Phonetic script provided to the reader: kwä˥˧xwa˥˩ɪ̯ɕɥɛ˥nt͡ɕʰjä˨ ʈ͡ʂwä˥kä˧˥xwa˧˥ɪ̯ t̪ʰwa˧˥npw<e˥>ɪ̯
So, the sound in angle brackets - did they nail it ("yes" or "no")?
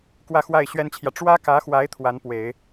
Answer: no